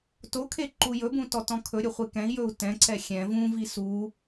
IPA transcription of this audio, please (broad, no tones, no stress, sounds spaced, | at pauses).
t o kʰ e ǃ u j ɵ b ũ t ɔ t ɔ̃ kʰ ɵ ɾʲ ɵ χʷ e k ɛ̃ i̯ j ɵ u̯ t ɛ̃ ǀ ɛ xʲ ɛ̃ v ũ v i s u